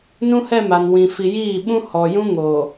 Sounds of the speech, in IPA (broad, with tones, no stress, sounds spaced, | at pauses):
n ũ˦ h ɛ˦˨ m a˨ n w ĩ˨ f i˨ j iː˦˨ ɓ ũ˦ h ɔ˨ j ũ˦ ŋ o˨